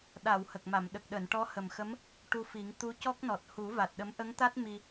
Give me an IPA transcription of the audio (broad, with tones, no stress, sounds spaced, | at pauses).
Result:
ɗ a˨˩˨ w h ə˨˩ k̚ m a˨˩˨ m ɗ ə˨˩ k̚ ɗ əː˨˩˨ n ʈ ɔ˧˥ h ə˨˩ m x ə˧˥ m | ʈ u˧ f i˨˩˦ ŋ t̪ u˧˥ c ɔ˦˥ k̚ n ɔ˨˩ t̚ h u˨˩˦ v a˨˩ t̚ ɗ ə˧˥ m ʔ ə˧˥ ŋ t̪ a˦˥ t̚ m i˧